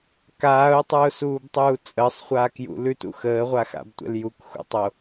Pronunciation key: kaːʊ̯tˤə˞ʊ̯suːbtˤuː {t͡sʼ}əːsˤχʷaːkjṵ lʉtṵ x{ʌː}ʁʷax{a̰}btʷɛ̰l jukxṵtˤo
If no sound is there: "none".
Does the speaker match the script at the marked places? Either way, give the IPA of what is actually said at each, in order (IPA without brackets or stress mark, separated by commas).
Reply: t͡sʼ, əː, a̰